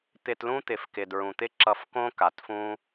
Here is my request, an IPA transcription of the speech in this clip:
t̪ɪ˧tlũ˦t̪ɪ˨fkɪ˨ dɹũ˨t̪ɪ˦ǁʌ˧fkõ˦ ka˨tfũ˦

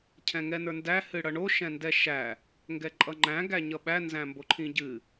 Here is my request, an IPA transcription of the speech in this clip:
cʰɛ̃ŋɛnə˞ndæ hɨɽʌɳo ʃɛ̃ndɛʃæ | ŋɡɛǃʼʌŋ͡ǃæ̃ ɡæɲʌɓæ nzæ̃mboǃʰĩɟɨ

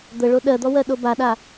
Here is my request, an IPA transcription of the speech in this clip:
d̪əɭo ɗɜd̪ɔwɜɗo baɗa

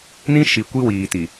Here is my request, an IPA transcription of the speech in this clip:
nĩ˦ ʃi˨ kʷi˦wiː˨ti˨

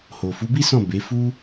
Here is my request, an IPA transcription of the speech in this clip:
ho˨fu˨˦bi˦sɔ̃˦˨ be˨˦fu˦

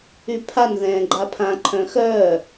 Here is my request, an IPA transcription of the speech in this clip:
ypʰan ðɛ̃ːɡ͡ǃapʰã ǃʰœ̃xœː

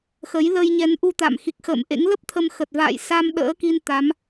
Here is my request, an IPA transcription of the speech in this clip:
xə˨˦j lə˧jɲɛ˨˦nʔu˧t̪a̰˧˨m xi˨˩k̚xə̰ː˧˨mʔḛ˧˥ŋ lə˦˥p̚ t̪ʰə˧mxə˨˩t̚va̰ː˧˨j sa˧m ɗə̰ː˧˥ki˧n t̪a˨˦m

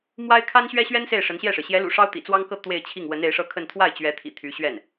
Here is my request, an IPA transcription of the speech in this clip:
mwa˥ɪ̯ kʰa˥nɕɥɛ˥ɕɥɛ˥n se˥˩ɪ̯ʂə˧˥nɕjɛ˥˩ʂɻ̩˩ ɕjɛ˧˥lṵ˨˩ ʂɑ˥ʊ̯t̪ḭ˨˩t͡swɑ˥ŋkɤ˥˧ t̪we˥˧ɪ̯t͡ɕʰi˥˩ŋ wə˧˥ne˧˥ɪ̯ʂɤ˥˧kʰə˥˧n t̪ʰwa˥˩ɪ̯t͡ɕɥɛ˧˥t̪ʰḭ˨˩ t̪ʰy˧˥ ɕɥɛ˥˩n

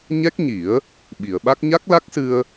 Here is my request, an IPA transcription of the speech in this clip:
ɲɛ˦˥k̚ɲi˨˩˦ə̯ | ɓi˨˩˨ə̯ɓa˦˥k̚ ɲa˦˥k̚la˦˥k̚sɨ˧ə̯

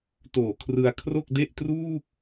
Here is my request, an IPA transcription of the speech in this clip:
toː˨˩kʰrɯ˧a̯kʰro˥˩k̚de˥˩ʔ truː˥˩k̚

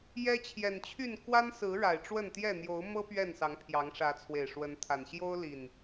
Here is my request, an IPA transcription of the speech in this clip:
jɛ˦t͡ɕʰjɛ˨˩nt͡ɕʰy˥˨n kwa˦nsɹ̩˨˦ ɻa˨˩ɪ̯ʈ͡ʂwə˥˨nt̪jɛ˥˨ n̪jo˨˦ʊ̯mɤ˦ pɥɛ˥˨nsɑ˨˦ŋpʰjɑ˨˦ŋ ʂä˨˦t͡sʰwe˨˩ɪ̯ʂwə˨˦nt̪ʰa˨˩n ɕjo˦ʊ̯li˨˩n

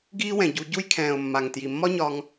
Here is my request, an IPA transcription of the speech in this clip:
ɡiː˦wɛ̃˨ɟu˧ ɟu˧jkʰɛ̃ː˨ʊ̯mːa˨ŋ tji˨mːɒ˦ɲɒ˧ŋ

